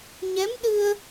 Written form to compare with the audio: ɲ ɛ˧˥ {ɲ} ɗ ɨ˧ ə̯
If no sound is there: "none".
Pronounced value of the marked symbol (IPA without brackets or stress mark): m